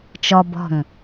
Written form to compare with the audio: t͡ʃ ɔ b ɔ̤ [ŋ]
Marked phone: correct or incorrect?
correct